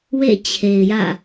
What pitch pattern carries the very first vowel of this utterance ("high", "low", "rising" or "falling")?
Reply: falling